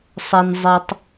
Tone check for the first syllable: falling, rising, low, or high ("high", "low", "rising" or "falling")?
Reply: low